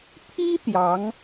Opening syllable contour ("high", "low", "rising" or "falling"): high